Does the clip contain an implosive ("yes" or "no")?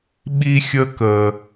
yes